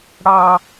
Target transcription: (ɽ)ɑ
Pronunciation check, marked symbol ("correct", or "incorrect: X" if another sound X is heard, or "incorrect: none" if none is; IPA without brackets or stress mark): correct